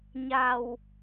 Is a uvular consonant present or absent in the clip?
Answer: absent